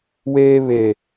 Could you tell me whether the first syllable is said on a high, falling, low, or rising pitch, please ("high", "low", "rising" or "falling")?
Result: high